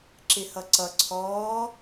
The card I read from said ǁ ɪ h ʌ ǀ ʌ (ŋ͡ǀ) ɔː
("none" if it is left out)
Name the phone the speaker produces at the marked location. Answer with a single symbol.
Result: ǀʰ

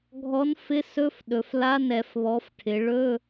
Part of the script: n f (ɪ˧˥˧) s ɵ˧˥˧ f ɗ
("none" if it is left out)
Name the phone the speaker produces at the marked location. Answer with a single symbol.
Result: ɪ˧˥˧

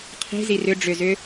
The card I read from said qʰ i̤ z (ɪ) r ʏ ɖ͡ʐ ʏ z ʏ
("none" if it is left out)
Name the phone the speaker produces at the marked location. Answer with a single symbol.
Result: i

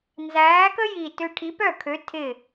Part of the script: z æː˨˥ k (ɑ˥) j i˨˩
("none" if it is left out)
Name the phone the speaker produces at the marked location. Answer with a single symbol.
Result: ə˥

